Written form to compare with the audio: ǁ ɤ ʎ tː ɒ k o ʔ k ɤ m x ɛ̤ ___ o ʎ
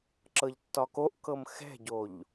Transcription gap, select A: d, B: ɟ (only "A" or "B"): B